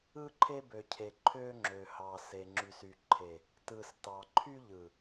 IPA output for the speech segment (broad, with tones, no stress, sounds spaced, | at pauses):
ɯ˦ ǃʰ e˦ b ø˨ cʰ e˨ ǃʰ ø˦ ŋ͡ǁ ø˨ h ɑ˨ s e˨ ŋ͡ǁ y˨ s y˨ ǃʰ e˨ | t ɯ˨ s t ɑ˨ ǃʰ y˦ ʎ ɯ˨